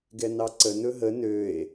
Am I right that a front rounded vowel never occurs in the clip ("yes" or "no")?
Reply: no